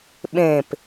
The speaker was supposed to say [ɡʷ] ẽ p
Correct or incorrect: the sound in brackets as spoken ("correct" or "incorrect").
incorrect